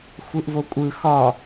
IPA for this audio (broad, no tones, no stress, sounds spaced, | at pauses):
xʷ ɯ ʔ v o kʷʼ ɯ x ɒ